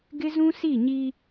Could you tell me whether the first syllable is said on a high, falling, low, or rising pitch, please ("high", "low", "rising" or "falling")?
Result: high